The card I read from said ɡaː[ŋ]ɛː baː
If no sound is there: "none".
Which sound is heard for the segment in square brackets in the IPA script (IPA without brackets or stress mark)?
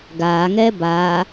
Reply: ŋ